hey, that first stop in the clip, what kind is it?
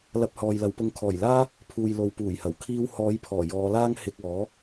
plain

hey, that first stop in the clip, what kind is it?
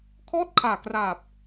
aspirated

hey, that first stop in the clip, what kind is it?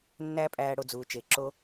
ejective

